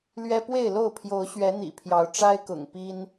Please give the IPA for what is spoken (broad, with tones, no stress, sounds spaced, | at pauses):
l ɥ ɛ˦ p w e˥˨ ɪ̯ l o˥˨ ʊ̯ pʰ j o˨˦ ʊ̯ ɕ ɥ ɛ˨˦ n̪ ḭ˨˩ pʰ j ɑ˨˦ ʊ̯ ʈ͡ʂ a˦ ɪ̯ k ʊ̰˨˩ ŋ p i˦ n